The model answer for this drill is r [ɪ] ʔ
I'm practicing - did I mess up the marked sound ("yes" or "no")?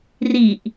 yes